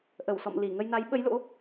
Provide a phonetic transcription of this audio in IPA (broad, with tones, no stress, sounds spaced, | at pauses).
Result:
ʔ ə˧˩ w s ɔ̰˧˨ m l i˧˩ ŋ ə˧ j n a˨˦ j ɓ ə˨˦ j l o̰˧˥